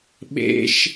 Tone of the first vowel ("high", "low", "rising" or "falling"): high